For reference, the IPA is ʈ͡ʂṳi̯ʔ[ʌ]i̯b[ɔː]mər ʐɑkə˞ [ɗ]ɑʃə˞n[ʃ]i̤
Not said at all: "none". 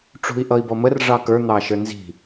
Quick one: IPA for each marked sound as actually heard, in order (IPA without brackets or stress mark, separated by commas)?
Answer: ʌ, ɔ, n̪, z